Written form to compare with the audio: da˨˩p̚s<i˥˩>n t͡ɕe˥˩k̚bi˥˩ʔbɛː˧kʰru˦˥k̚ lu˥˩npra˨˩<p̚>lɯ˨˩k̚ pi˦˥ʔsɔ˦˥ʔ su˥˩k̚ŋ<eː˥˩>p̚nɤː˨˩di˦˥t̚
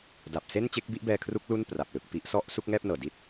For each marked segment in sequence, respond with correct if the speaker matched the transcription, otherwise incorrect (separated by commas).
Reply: incorrect, correct, incorrect